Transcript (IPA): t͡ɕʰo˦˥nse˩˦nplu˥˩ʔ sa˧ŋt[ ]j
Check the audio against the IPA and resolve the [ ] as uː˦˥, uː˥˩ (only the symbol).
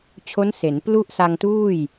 uː˥˩